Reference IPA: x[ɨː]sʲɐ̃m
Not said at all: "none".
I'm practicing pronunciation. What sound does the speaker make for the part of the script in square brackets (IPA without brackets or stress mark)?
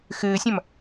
ɨː